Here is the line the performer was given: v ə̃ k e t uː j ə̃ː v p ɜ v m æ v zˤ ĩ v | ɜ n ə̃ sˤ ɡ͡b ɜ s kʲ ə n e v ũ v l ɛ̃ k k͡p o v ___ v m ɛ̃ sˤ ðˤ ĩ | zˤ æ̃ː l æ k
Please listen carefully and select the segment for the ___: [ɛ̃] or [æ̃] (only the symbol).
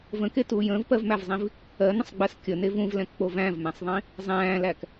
æ̃